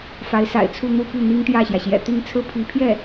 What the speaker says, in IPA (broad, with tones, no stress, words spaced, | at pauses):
fa˧˥ɪ̯sa̰˨˩ɪ̯t͡sʰu˥˧n̪u˥˧ py˥˩ n̪i˥ŋt̪jä˥˩ɕjä˩ɕjɛ̰˨˩ t̪i˥˧ŋ t͡sʰɹ̩˥˩pʰi˧˥pʰjɛ˥˩